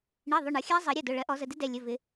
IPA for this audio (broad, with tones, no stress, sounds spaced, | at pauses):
ɳ i˩˧˩ ðˤ ʊ˩˧˩ ɳ ʌ˨˩˦ xʲ æ˦˥ zˤ ɜ˨˩˦ ɾʲ ʌ˩˧˩ d ʊ˩˧˩ ɭ ɜ˨˩˦ ʔ ɔ˨˩˦ z ə˩˧˩ d ɪ˦˥ d ɛ˩˧˩ lʲ ə˩˧˩ v ɪ˨˩˦